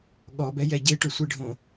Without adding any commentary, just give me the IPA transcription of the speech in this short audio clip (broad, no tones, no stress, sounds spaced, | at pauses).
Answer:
ɠ ɔ b ɛ j ɛ ɟ e ʈ ʊ sʷ i ɖʱ õ